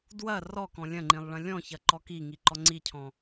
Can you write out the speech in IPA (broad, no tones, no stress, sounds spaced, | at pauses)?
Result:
d w ɐ r ɔ k ɔ̃ lʲ ɐ̃ ŋ͡ǃ ĩ lˠ ɭ ɐ̃ lʲ ɔ̃ ç ɐ ǃ ɔ k i ŋ i ǃ ɔ ŋ͡ǀ i cʰ ɔ̃